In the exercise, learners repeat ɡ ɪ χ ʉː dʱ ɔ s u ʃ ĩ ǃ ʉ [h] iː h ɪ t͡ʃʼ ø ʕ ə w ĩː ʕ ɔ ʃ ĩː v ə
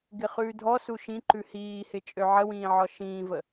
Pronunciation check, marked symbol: correct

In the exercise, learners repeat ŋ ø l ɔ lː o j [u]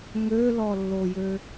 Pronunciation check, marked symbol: incorrect: ø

